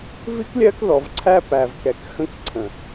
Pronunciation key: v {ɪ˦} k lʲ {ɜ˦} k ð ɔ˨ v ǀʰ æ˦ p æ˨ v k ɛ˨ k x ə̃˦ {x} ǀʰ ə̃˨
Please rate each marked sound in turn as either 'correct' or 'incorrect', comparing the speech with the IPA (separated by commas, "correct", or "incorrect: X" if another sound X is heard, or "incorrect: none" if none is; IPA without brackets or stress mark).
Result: incorrect: i˦, correct, incorrect: k